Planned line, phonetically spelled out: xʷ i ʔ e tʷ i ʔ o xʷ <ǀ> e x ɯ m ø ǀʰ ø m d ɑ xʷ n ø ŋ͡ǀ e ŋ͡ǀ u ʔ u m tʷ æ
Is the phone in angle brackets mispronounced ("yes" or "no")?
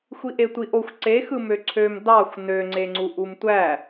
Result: no